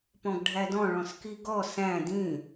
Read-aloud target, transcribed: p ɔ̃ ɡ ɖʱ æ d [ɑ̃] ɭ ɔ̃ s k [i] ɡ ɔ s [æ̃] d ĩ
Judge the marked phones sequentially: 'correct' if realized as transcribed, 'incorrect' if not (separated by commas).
incorrect, correct, correct